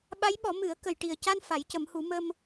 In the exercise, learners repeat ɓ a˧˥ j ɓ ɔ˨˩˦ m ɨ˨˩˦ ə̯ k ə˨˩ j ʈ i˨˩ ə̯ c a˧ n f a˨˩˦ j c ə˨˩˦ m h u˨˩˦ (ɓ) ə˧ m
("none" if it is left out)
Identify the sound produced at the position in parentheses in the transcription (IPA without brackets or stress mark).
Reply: m